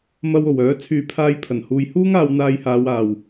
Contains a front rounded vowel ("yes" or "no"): yes